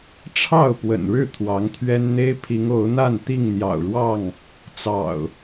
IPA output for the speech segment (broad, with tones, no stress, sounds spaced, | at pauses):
ʈ͡ʂʰ ɑ˥˨ ʊ̯ p w ə̰˨˩ n ɻ ɻ̩˥˨ t̪ʰ w ɑ˨˦ ŋ t̪ʰ ɥ ɛ˦ n n̪ e˦ ɪ̯ pʰ i˨˦ ŋ o˨˦ ʊ̯ n̪ a˥˨ n t̪ i˥˨ ŋ n̪ j ɑ̰˨˩ ʊ̯ ɻ w ɑ˥˨ ŋ | t͡s ɑ̰˨˩ ʊ̯